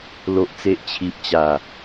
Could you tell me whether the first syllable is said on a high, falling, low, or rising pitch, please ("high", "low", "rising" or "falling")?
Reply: low